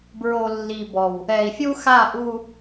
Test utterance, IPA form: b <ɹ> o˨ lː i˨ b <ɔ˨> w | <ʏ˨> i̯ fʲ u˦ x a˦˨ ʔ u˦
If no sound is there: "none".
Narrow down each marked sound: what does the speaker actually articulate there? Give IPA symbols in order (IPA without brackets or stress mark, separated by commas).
ɹ, ɔ˨, ɛ˨